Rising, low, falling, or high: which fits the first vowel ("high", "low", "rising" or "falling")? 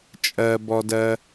high